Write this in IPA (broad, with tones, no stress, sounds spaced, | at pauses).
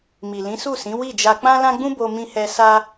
m i˨ l ĩ˨˦ s u˦˨ s ĩ˨˦ w i˦˨ d͡ʒ a˧ k͡p ã˦ l ã˦ ɡ͡b ũ˦ b o˧ m ĩ˧ h ɛ˧ s a˦